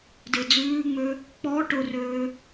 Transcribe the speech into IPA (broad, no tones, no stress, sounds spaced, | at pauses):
d e d͡z ʉː ŋ͡m ø | k͡p ɔ ʈ ʊ r øː